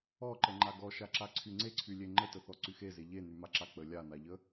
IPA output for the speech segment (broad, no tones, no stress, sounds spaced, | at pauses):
ɔ ǃ ə ŋ͡ǃ a ɡ ɔ ʃ a ǁ a ǀʰ y ŋ͡ǀ e ǀʰ y lʲ e ŋ͡ǃ ə t ə θ ɔ ǀ y x e z e ʎ e n y m a ǁ a k͡p ə lʲ a n a ʎ ə